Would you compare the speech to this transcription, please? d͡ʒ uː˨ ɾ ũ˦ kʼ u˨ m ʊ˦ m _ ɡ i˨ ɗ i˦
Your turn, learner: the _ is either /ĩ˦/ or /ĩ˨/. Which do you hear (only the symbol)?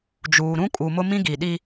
ĩ˦